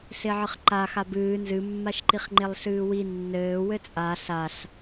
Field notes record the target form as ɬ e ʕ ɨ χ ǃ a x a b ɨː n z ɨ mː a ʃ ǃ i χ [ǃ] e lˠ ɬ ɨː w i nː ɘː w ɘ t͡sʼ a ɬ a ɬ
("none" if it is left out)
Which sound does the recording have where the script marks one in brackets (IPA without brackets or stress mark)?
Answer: ŋ͡ǃ